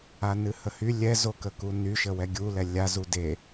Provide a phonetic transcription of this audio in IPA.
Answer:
a n ɨ h ə h y lʲ ɛ z o k ə k u n y ʃ ə w ɛ ɡʲ u l ɛ lʲ a z u d e

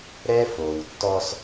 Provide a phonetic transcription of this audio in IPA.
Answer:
ɾ ɛ˦ f o˨ w tː ɔ˦ s

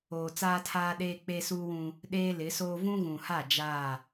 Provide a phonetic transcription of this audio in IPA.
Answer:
oː˨ t͡s aː˦ tʰ aː˦ ɗ eː˦ k͡p e˦ s uː˦ w ũ˦ | ɗ eː˦ l ɪ˨˦ s oː˦ v ũ˦ ɣ ũ˨ h a˦˨ d͡ʒ aː˦˨

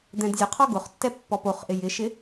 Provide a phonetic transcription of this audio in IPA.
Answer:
d̪ ɛ̃ d zʲ ə qʰ ɔ ɡ ʊ χ tː ɛ pː ɔ p o χ ʔ ɪ j ɪ ʃ ɪ

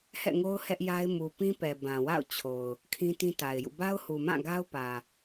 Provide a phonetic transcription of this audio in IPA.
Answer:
h ɛ̰˦˨ ŋ o˦ ʊ̯ h ɛ˦ ʔ j a˦ ɪ̯ m u˨ p ĩ˦ p ɛ˨ b ã˨ w a̰˦˨ ʊ̯ t͡ɕʰ o˨ ʊ̯ | kʰ ĩ˦ t ĩ˦ t a˨ ɪ̯ j ṵ˦˨ b a˦ ʊ̯ h u˨ m ã˦˨ ɡ a˦ ʊ̯ p ä˨

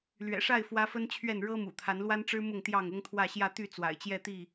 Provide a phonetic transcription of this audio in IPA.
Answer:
l ɥ ɛ̰˨˩ ʂ a˥˨ ɪ̯ f w ä˦ f ə˦ n t͡ɕʰ ɥ ɛ˥˨ n ɻ ɤ˦ m ṵ˨˩ t̪ʰ a˨˦ n l w a˦ n ʈ͡ʂ ɻ̩˦ m ʊ˥˨ ŋ t̪ j ɑ˥˨ ŋ ʊ˦ ŋ t̪ʰ w ä˥˨ ɕ j ä˥˨ t̪ y˥˨ t͡s w a̰˨˩ ɪ̯ t͡ɕ j ɛ˥˨ t̪ i˥˨

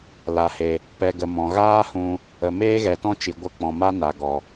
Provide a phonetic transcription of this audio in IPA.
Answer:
l a˨ h e˨ | p ɛ˧ ɡ ə˨ m ɔ̃˨ ɣ aː˦ h ũ˧ | ə˨ m eː˦ ɣ ɛ˨ t ɔ̃˦ t͡ʃ i˨ ɡʷ ə˧ k͡p ɔ̃˨ m a˦ n a˨ ɡ ɔ˨

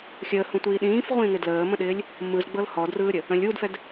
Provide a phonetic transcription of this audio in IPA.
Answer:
xʲ əː h ũ tʷ iː ɗ ĩː f ʁʷ ĩː ŋ ɪ d l əː m ə̃ ɗ ɪː lʲ | m ɯ z ɡ͡b ɤ l h ɔ d r ɯː ɾʲ ə | ə̃ lʲ u d f ɛ d

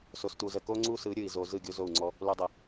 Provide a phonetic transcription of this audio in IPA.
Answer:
s o˨ s t u˨ z ə˨ k o˦ ŋ͡ǀ u˦ s ɯ˨˦ ɾʲ ɯ˨ i̯ z o˧ z ɯ˦˨ ɡʲ o˦ z o˦˨ u̯ ŋ͡ǀ ɔ˦ | l u˧ dˤ ə˨

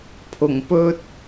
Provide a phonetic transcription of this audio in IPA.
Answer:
pʰ ʊ˨˩ ŋ p ɵ˧ t̚

